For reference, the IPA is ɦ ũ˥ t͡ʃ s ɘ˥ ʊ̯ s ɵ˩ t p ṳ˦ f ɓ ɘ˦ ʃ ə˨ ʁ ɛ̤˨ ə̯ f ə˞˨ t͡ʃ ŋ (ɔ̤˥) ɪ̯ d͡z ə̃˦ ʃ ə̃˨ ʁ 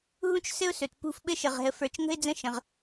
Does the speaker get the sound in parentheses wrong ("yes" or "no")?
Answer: yes